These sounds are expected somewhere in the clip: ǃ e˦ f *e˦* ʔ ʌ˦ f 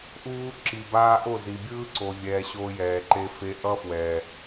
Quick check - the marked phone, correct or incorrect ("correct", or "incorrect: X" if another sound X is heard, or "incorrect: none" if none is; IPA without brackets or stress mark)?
correct